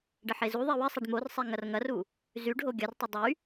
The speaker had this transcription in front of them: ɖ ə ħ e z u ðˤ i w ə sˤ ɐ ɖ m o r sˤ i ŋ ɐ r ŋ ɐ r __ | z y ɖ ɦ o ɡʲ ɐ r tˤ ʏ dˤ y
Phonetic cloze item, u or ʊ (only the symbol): u